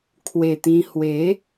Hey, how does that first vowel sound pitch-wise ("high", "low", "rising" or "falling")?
low